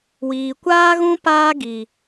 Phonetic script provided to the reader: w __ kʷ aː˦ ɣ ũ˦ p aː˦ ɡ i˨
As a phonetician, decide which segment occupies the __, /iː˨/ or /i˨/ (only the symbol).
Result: iː˨